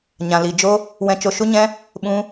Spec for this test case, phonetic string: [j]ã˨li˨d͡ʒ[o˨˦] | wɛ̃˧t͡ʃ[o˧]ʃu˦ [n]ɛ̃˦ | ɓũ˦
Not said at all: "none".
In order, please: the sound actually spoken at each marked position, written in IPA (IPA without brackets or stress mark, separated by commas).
ɲ, o˦, o˧, ɲ